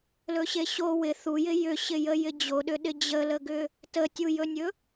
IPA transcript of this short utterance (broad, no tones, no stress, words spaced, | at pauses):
lɵɕeɕo wɪ θujɪ jʏɕɪjə jɪd͡ʑoɗʏɗɪ d͡ʑələɡʏ | tətʲujɵnʲɵ